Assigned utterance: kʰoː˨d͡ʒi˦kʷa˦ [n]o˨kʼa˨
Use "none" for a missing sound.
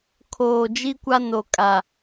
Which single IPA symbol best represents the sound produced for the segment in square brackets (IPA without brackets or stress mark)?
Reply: n